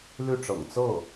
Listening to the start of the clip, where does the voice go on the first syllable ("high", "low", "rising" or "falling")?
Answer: falling